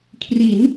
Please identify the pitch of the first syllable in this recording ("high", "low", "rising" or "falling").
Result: rising